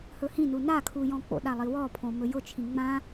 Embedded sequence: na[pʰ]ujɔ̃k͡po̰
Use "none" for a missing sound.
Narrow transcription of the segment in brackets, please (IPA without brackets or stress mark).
kʰ